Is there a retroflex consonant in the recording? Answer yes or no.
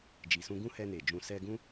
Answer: no